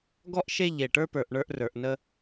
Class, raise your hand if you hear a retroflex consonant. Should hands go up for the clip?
yes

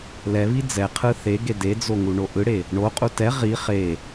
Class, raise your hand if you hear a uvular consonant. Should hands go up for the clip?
yes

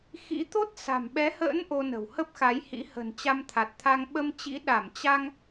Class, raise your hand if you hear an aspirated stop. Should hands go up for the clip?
yes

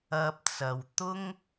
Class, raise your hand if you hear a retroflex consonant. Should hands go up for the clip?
no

